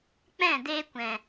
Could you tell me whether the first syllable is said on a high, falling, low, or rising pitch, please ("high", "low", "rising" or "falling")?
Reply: falling